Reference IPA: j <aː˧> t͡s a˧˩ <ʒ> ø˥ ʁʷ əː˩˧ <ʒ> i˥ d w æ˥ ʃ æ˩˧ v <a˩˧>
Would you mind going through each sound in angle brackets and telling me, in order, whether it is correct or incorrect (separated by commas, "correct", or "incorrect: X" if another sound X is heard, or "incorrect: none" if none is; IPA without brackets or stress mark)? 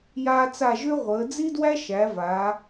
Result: correct, correct, incorrect: d͡z, correct